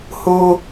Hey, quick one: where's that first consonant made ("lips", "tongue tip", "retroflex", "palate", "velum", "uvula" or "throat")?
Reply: throat